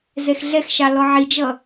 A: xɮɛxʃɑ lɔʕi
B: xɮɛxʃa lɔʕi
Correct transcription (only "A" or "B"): A